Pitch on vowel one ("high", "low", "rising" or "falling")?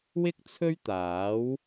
high